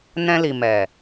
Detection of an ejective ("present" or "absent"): absent